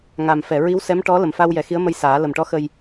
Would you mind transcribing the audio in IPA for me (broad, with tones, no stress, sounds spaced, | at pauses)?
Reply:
ŋ a˨˩ m f ɛ˨˩˨ ɹ i˧˥ w s ɛ˧˥ m ʈ ɔ˧˥ l ə˨˩ m f a˧ w j ɛ˨˩ x i˧˥ ə̯ m ə˧ j s aː˨˩˦ l ə˨˩ m ʈ ɔ˧˥ x ə˧ j